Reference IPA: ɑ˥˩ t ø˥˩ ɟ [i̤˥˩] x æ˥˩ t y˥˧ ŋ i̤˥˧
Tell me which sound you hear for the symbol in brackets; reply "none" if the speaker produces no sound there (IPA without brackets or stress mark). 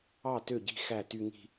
i̤˥˩